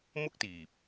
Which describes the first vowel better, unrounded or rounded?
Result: rounded